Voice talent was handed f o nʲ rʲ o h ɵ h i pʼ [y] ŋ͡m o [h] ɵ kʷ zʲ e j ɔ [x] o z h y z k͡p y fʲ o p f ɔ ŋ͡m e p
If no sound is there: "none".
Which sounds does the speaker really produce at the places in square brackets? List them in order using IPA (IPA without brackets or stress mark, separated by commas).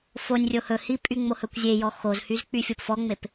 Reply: y, h, x